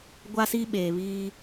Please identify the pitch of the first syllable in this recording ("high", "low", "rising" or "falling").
high